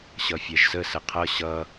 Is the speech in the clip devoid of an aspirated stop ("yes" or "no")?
no